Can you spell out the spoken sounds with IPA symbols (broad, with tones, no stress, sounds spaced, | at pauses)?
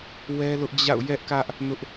w ɛ˦ l ʊ˦ ʔ d͡ʑ a̰˦˨ ʊ̯ j ɛ˦ ʔ k ä˦ ʔ | n ʊ˦ ʔ